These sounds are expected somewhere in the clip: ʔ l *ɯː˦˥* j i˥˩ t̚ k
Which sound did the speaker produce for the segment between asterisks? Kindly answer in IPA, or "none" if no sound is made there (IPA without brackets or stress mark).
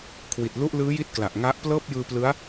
ɯː˦˥